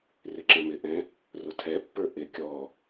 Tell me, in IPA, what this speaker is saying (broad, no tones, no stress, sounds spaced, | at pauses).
r ɪ ǁ ɛ̃ m ɪ ʔ ɛ̃ | r ʊ tʰ ɛ pː ə˞ ʔ ɪ kʲ ɔ